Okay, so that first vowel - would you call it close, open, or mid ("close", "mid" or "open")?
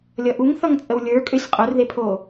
mid